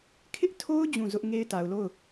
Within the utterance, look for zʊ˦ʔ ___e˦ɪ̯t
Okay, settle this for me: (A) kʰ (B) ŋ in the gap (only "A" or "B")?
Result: B